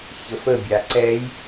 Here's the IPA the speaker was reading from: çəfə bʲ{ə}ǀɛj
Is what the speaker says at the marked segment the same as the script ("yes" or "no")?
no